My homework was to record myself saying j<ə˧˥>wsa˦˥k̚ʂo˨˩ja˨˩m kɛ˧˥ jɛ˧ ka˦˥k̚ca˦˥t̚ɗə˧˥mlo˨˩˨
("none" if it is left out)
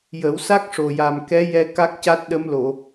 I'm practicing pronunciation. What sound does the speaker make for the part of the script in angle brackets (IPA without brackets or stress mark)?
ə˨˩˦